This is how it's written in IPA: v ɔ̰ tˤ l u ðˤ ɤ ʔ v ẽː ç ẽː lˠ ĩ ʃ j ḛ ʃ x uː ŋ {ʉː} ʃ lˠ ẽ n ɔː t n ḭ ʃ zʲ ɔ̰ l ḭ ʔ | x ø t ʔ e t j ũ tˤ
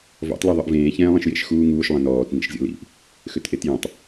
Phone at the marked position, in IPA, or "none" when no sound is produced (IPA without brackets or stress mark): uː